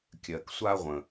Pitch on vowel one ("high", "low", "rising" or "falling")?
low